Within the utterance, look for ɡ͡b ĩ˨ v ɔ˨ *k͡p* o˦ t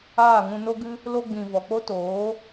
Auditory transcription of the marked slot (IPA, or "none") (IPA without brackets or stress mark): k͡p